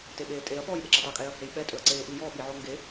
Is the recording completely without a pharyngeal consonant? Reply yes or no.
no